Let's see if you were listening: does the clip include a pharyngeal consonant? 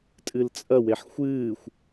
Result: yes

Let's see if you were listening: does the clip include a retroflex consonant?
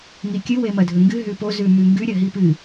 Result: no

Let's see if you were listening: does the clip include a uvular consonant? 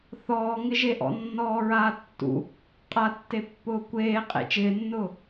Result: yes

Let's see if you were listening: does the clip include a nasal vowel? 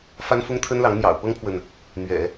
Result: no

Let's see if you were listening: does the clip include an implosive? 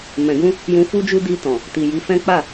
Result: no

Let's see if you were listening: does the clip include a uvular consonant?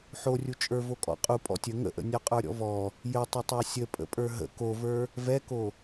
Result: yes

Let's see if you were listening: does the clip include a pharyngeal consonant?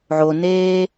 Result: yes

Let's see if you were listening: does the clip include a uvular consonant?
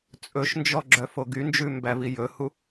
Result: no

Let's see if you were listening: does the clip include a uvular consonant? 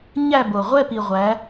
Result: yes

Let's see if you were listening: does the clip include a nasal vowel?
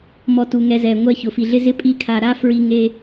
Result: no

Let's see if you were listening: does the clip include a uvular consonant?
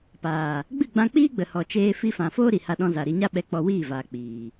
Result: no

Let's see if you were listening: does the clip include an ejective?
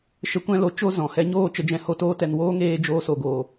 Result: no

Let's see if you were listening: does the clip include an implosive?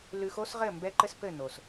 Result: no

